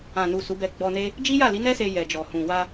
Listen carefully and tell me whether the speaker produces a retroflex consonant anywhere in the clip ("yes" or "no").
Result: no